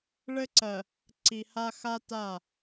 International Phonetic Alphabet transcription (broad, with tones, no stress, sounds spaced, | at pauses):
ɭ ɘ˦ ǀ ɜ˨ | ǀ i˨ h a˦ x a˦ t a˦˨